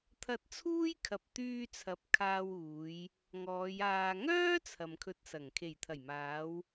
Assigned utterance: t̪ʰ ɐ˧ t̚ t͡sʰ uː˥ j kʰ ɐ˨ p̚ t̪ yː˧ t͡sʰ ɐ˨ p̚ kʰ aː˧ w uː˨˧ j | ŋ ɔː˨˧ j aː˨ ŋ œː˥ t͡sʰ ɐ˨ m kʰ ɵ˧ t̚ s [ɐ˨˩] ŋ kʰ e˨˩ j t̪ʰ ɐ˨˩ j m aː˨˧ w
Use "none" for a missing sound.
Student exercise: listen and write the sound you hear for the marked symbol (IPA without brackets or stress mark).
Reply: ɐ˨˩